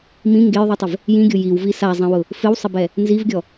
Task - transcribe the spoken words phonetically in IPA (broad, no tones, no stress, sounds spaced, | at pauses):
m ĩ ŋ ɡ e j ðˤ i tˤ ɪ v | j ĩ ɡʲ ʊ j i w v i s a zˤ ĩ w ʊ | f ɪ w sˤ ɪ b ɛ | n z i v ɡʲ ɔ